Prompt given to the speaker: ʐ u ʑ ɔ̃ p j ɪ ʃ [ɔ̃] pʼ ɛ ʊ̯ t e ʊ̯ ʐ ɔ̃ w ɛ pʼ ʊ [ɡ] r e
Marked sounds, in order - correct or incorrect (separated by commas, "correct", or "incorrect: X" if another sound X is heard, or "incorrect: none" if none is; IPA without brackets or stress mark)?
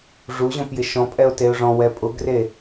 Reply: correct, correct